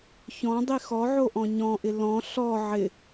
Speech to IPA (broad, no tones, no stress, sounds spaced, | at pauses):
ç ɔ̃ dˤ i x ɔ ʕ o ʔ ɔ̃ ɲ ɔ̃ ʔ ɪ l ɔ̃ ɬ ɔ ʕ ɪ